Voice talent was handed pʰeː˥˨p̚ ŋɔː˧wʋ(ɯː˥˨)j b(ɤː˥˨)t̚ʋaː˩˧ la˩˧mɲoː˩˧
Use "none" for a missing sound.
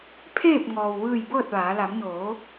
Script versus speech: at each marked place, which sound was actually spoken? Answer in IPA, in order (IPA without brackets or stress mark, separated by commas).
ɯː˥˨, ɤː˥˨